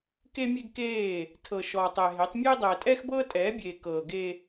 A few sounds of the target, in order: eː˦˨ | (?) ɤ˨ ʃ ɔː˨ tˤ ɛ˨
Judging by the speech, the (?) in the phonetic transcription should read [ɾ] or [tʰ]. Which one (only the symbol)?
tʰ